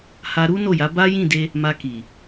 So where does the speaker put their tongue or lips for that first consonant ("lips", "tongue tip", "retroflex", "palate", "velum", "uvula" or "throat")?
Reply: throat